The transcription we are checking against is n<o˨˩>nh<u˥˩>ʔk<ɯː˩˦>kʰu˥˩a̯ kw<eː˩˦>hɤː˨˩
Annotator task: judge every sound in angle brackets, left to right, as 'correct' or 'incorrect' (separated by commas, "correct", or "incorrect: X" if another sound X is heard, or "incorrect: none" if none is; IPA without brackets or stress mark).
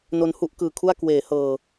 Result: incorrect: o˧, correct, incorrect: ɯː˨˩, correct